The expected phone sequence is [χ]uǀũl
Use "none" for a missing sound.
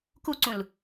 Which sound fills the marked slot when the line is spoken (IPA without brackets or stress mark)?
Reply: k